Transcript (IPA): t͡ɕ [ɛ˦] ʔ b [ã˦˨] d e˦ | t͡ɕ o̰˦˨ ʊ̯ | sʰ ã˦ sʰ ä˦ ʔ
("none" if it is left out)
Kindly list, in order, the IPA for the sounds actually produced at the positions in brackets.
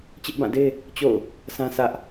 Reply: ɪ˦, ã˦˨

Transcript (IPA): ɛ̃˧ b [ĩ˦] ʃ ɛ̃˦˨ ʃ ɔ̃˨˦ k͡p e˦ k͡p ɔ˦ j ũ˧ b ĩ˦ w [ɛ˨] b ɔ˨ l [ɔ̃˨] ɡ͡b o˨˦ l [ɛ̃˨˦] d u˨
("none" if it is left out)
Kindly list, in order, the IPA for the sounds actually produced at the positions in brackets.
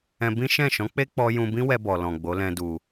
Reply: ĩ˦, ɛ˧, ɔ̃˨, ɛ̃˧

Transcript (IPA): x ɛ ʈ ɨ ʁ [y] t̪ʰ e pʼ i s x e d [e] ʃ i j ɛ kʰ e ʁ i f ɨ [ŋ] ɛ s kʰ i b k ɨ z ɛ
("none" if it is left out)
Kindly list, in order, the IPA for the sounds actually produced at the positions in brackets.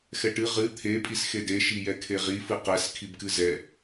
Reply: ɨ, e, q

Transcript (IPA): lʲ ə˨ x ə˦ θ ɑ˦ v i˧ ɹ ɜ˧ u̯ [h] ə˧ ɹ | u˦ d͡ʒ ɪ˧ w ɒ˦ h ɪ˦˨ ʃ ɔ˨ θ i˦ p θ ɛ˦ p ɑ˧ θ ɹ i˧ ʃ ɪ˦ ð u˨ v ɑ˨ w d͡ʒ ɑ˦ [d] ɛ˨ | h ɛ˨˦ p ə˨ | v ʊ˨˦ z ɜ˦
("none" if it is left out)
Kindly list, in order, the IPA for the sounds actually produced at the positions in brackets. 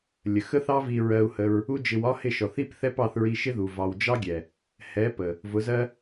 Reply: h, ɡʲ

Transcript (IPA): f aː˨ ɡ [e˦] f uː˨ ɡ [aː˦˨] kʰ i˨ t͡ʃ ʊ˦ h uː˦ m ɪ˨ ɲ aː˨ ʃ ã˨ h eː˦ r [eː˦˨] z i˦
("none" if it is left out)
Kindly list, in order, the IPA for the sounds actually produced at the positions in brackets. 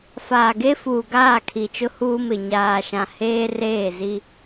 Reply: e˦, aː˦˨, eː˦˨

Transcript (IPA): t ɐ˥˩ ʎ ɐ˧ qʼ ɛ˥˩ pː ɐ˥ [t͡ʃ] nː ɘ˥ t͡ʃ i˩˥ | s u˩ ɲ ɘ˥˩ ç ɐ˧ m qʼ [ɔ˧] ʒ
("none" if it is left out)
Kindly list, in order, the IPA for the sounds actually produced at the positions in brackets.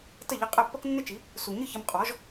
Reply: k, ɔ˩˥

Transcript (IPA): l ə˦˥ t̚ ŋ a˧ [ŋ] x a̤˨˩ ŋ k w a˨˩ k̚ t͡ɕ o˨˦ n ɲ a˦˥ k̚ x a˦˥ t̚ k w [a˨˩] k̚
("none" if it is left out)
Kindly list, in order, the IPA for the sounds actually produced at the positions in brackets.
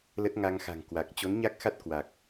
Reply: ŋ, a˨˩

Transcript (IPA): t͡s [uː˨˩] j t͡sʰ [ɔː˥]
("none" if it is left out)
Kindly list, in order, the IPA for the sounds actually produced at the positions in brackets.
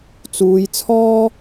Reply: uː˨˧, ɔː˥

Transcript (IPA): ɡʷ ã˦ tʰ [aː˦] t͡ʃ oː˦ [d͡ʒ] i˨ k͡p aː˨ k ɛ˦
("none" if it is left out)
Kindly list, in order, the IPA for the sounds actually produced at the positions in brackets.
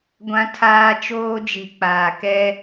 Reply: aː˦, d͡ʒ

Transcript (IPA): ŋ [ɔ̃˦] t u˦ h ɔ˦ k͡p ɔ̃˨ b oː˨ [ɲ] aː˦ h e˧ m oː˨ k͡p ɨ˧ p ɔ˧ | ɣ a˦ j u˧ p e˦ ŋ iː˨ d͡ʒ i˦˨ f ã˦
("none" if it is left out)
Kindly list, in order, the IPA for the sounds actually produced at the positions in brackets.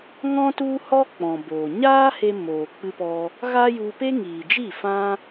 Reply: ɔ̃˦, ɲ

